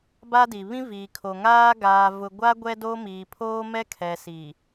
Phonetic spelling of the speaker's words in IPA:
b a˦ d i˨ β ĩ˦ v iː˨ kʰ o˨ ŋ aː˦ ɡ aː˨ v ʊ˨ ɡʷ a˦ ɡʷ ɛ˦ d oː˦ m iː˨ pʰ oː˦ m ɛ˦ kʰ ɛ˨ s i˨

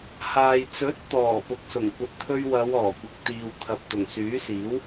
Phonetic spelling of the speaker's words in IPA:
h aː˨ j t͡s ɵ˨˥ t̚ t̪ ɔː˨˩ p ʊ˨ k̚ s ʊ˨˩ ŋ kʷ ɐ˨ t̚ t̪ʰ ɵ˧ ɥ w ɐ˨˧ w ɔː˨˩ kʷ ɪ˨ k̚ t̪ iː˨ w t̪ʰ ɐ˨ p̚ t̪ ʊ˨˩ ŋ s yː˨˥ s iː˨˥ w

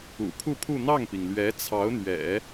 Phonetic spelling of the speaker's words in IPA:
ṵ˨˩ pʰ u˥˧ pʰ u˥˧ n̪ ɑ˥˩ ŋ p i˩ ŋ l ɥ ɛ˧˥ t͡sʰ ɑ˧˥ ʊ̯ n̪ ɥ ɛ̰˨˩˦

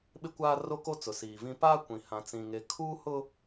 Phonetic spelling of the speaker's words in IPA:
ɓ ɪ˦ kʷ aː˦ r o˦ k o˦ t͡s ʊ˨ s iː˨ v ĩ˦ p aː˦ kʷ ĩ˨ h ã˨ t͡s ĩ˨ ŋ e˨ kʰ uː˦ h ʊ˦

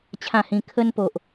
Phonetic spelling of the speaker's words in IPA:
t͡ɕʰ ã˥˧ h ĩ˧ kʰ ə˦ n p o˨ ʔ

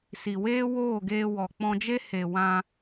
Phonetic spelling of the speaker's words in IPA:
s i˨ w eː˦ w oː˦˨ ɡ eː˧ w ɔ˨ k͡p ɔ̃˧ d͡ʒ e˦ h e˨ w ã˧

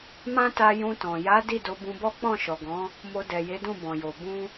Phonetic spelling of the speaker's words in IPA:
m ã˦ t a˧ j ũ˧ t ɔ̃˨ j a˨˦ d i˦˨ d o˧ b ũ˧ b ɔ˦ k͡p ɔ̃˦˨ ʃ ɔ˨ ɡ ɔ̃˨˦ | m o˧ d ɛ˨ j e˨˦ d ũ˦˨ b ɔ̃˨ j o˨ b ũ˧

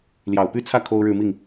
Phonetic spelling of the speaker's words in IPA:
l j ɑ˨˩ ʊ̯ p y˥˧ t͡sʰ ä˥˩ kʰ o˥ ʊ̯ ɻ ɻ̩˥˧ m i˥˩ ŋ

